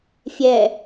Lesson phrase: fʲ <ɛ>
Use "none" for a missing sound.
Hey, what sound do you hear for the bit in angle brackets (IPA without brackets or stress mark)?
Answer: ɛ